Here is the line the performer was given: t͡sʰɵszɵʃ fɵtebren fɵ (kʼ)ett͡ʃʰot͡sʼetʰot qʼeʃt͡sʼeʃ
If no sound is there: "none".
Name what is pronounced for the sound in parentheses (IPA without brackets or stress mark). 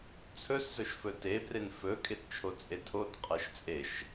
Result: kʼ